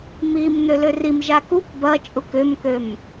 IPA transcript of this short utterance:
m i m n̪ ø l ø r i m ʒ a k u k b ɐ t͡ʃʼ u k ʏ m k ø m

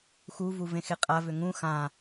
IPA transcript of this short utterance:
x u v u v ẽ x e qʼ a v ʏ ŋ ũ x ã

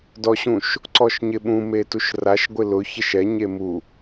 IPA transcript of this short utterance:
d ɔ ɕ ũ ʃ | ǀ ɔ ʃ ɲ ɪ ɓ ũ m e t u ʃ r a ʃ ɡʷ ɪ l ʊ ç ɛ ʃ ɛ ɲ e m u

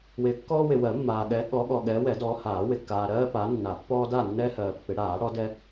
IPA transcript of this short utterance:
w ɪː˨ kː ɔː˦ w ɪ˨ w ɜ˨˩˦ mː aː˨ ɠ ɛ˨˦ ɠ ɔ˨˦ ɠ ɔ˨ ɠ ɛː˨˦ w ɛ˨˩˦ d ɔː˨˦ h aː˨˩˦ w ɪ˨ kː aː˨ ɾ ɜː˦ p aː˨˦ nː a˨˩˦ pː ɔː˦ d a˥˨ nː ɛ˦ h ɜː˨ pː ɪ˨˩˦ ɽ aː˨˩˦ ɽ ɔ˨˦ d ɛ˦

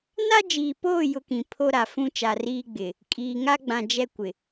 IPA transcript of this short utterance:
n a˦ d͡ʒ iː˨ p oː˦˨ j ʊ˦ k ĩ˨ pʰ o˦ ɾ a˨ f ũ˦ t͡ʃ a˨ r iː˦ ɡ͡b ɪ˨ | kʼ iː˨ ŋ a˦ ɡ͡b ã˨ d͡ʒ ɛ˦ kʷ ɪ˨

